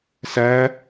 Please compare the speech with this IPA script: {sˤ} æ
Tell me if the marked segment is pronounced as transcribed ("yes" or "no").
no